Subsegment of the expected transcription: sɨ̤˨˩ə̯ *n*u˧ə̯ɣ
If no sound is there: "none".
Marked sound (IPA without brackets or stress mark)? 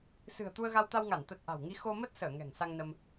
t̪